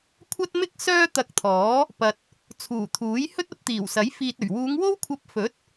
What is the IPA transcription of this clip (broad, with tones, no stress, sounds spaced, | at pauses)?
kʷʰ ɐ˥ t̚ m ɪ˥ k̚ s œː˥ t̪ ɐ˧ k̚ t̪ʰ ɔː˨˥ | p ɐ˨ t̚ | t͡sʰ uː˨˩ t̪ʰ uː˨˥ j h ɵ˥ t̚ ɐ˧ p̚ t̪ iː˨˩ w s ɐ˨˥ j f iː˨ t̚ ɵ˨˩ ɥ w uː˨˧ ŋ w o˥ w kʷʰ ɐ˧ p̚ f ɵ˨˥ t̚